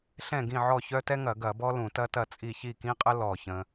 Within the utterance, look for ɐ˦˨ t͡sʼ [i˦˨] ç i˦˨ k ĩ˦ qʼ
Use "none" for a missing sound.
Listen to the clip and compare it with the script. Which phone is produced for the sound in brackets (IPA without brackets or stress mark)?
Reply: i˦˨